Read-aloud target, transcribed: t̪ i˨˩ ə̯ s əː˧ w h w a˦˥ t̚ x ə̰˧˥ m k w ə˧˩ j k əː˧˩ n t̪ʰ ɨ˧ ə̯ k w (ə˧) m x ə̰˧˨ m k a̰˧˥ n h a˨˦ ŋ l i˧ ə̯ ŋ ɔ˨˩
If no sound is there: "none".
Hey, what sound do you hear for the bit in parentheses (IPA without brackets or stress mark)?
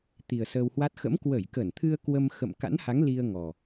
ə˧